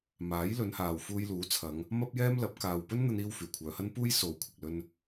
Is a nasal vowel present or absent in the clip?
absent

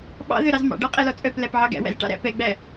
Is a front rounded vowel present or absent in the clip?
present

